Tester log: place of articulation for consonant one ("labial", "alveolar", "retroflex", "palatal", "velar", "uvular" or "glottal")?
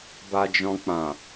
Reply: labial